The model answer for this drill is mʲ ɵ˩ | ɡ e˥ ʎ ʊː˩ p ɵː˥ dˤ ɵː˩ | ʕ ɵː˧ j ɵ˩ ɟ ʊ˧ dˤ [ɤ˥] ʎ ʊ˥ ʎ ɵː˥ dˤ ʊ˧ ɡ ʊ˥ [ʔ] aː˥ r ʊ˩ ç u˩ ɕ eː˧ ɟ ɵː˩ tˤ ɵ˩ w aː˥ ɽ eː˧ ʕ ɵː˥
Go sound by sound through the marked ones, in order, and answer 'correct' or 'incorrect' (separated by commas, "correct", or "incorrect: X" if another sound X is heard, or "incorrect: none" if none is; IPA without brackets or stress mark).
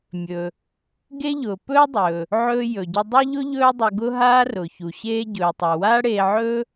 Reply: incorrect: ɵ˥, incorrect: ɦ